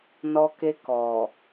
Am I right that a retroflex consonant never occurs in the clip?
yes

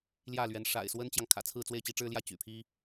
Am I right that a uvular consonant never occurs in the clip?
yes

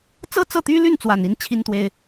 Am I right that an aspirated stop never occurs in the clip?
no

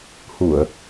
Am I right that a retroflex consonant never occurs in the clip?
yes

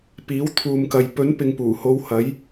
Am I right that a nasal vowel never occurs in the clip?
yes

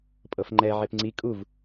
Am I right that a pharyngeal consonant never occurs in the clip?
no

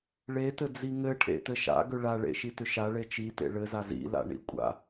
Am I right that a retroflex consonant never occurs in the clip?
no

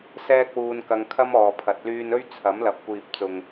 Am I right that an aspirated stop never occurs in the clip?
no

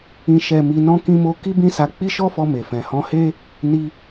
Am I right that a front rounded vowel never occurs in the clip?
yes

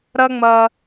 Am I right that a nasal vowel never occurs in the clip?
yes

